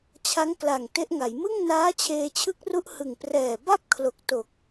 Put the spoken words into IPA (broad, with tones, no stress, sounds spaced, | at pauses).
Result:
t͡ɕʰ a˦˥ ŋ k l a˨˩ ŋ t e˦˥ ʔ ŋ a˩˦ j m ɯ˥˩ ŋ n aː˦˥ t͡ɕʰ eː˧ t͡ɕʰ ɯ˦˥ k̚ r u˦˥ ʔ h ɯ˨˩ ŋ p r ɛː˨˩ b a˥˩ p̚ kʰ l o˨˩ k̚ t o˨˩ k̚